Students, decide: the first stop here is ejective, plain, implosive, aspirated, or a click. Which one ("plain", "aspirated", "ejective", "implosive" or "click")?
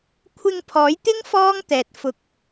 aspirated